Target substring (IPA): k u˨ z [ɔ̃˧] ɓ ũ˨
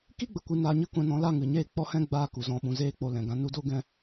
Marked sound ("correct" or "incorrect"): incorrect